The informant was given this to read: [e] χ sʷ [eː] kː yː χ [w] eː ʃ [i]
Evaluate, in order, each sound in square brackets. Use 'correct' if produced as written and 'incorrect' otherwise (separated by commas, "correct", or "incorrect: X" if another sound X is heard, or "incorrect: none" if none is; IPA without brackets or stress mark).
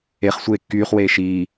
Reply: correct, correct, correct, incorrect: iː